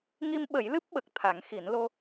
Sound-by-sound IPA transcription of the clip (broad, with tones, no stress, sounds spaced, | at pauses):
ŋ i˧ m ɓ ə˨˩˦ j l ɨ˦˥ p̚ ɓ ə˨˩ k̚ t̪ʰ a˨˩˦ ŋ x i˨˩˦ n l o˧